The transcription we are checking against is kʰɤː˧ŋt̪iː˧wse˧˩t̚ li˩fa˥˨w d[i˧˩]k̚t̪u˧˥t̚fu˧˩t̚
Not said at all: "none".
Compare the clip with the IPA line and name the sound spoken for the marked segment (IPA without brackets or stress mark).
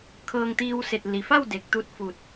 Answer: e˧˩